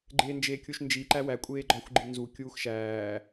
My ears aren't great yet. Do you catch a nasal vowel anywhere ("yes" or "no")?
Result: no